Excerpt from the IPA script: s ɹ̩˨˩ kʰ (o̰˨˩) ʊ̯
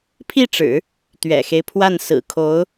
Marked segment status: incorrect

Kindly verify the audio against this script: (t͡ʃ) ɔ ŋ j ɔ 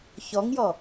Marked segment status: incorrect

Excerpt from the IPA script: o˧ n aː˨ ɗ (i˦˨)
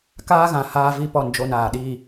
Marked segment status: incorrect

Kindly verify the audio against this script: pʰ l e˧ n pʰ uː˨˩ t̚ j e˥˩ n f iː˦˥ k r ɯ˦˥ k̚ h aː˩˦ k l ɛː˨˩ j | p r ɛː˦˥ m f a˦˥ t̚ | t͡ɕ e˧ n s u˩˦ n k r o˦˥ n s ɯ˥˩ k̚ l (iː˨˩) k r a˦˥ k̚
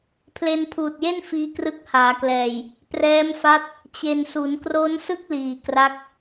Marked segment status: correct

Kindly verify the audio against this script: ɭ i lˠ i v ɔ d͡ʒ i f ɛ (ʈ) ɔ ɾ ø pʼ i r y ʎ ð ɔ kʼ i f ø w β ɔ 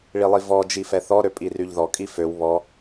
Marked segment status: incorrect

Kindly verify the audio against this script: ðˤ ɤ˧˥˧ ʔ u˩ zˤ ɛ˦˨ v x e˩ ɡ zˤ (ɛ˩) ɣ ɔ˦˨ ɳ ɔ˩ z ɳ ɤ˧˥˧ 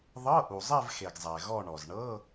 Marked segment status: correct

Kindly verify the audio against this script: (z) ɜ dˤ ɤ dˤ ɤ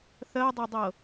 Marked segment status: incorrect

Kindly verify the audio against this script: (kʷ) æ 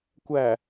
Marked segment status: correct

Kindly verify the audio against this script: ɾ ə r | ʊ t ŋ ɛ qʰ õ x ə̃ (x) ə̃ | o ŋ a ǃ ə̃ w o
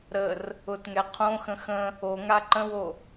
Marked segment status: correct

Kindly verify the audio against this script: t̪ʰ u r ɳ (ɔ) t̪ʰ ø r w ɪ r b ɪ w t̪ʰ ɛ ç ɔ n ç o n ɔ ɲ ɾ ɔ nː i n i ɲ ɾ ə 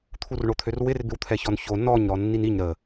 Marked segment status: incorrect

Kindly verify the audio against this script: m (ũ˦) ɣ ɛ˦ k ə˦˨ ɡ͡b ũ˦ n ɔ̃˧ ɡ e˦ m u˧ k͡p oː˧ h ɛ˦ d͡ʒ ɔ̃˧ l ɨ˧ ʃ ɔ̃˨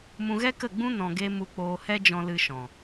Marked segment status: incorrect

